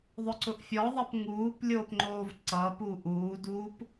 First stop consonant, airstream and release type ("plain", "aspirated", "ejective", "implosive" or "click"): click